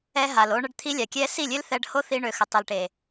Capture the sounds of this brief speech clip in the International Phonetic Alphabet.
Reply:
ɛ˧ɦa˨lo˧ ɳə˧ɖ t̪ʰi˧lʲa˨kʲɛ˧ si˦˨lʲø˦l θɛ˧ɖho˦θi˧ ɳø˨xə˨ tˤi˨lʈe˨

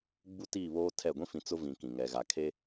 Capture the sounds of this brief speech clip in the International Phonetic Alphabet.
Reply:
ɡ͡bu˦tiː˦˨βoː˦ tʰɛ˦˨ ɡʷĩ˦fĩ˨ t͡sʊ˦vĩ˨ kĩ˨ ŋɛ˨ɣa˨ kʰe˦

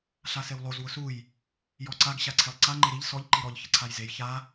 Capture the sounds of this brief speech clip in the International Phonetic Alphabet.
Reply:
ɬasewlˠoz wʊsuj | jɔǀaɡ ɕaǀʰelˠǀa ŋ͡ǃeɾiʎ sɔʎ ǃiɾɔʎ çɪǀʰajzej ça

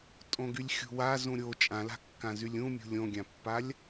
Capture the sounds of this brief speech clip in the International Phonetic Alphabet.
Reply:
tʼõɡylʲxʲṳwa zũɾʲo t͡ʃʼãla̤kːãzylʲ ũmʲṳ lʲõɡʲãpːalʲ

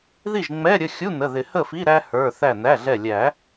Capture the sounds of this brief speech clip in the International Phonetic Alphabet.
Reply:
ði˥˩ʒŋ͡mɛ˧˥˧ɾʲə˩˧˩ xʲu˧˥˧ nə˩˧˩ðɪ˨˩˦hə˥˩fi˧˥˧ ɾæ˥hə˞˩˧˩ θæ˧˩næ˩˧˩ɮɛ˧˩lʲæ˨˩˦

